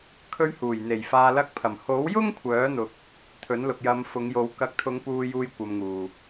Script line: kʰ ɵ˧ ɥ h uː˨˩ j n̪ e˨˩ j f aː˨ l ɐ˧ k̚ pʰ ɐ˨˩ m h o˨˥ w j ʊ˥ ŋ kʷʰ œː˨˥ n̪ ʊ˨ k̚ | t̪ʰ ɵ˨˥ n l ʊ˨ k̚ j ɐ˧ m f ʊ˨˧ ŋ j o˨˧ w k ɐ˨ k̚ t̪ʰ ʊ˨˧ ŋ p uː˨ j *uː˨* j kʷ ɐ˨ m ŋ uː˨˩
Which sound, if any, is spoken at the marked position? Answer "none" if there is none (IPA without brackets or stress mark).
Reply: uː˨